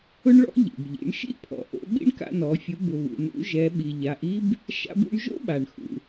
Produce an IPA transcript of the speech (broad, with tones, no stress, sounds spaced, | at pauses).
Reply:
ʊ˥ ɳ ɭ ɔ̰˥ ʎ ḭ˩ b ʎ ḭ˩˧ ɳ ʃ ḭ˥ pʰ ɔ̰˩˧ ʔ o̰˩˧ ɓ ḭ˥ ɳ k a̰˧ n ɔ˩˧ fʲ ʊ˩˧ b ʊ˩ β ṵ˩ n ṵ˩˧ ʒ ɛ˩˧ ɓ i˩ ʎ a˩˧ ʔ i˥ b | ʃ a̰˧ b ṵ˧ ɳ ʒ o̰˥ ɓ a˩ ɳ x ṵ˩